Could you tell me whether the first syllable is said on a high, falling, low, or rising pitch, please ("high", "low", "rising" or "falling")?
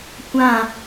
falling